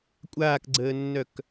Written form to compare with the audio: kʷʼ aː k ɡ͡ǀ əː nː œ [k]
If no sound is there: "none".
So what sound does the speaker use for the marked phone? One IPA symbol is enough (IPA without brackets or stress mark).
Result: k